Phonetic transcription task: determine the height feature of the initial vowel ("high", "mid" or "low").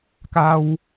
low